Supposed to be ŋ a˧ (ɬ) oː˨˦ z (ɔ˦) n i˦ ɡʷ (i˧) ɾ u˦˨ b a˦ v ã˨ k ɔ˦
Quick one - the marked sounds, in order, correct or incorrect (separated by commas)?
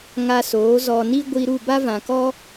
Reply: incorrect, incorrect, correct